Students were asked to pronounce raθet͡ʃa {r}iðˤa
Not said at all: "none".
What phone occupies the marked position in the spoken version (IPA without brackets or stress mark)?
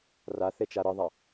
ɾ